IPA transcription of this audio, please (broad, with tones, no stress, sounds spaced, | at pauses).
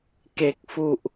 k e˨˩ k̚ f u˨˩ ʔ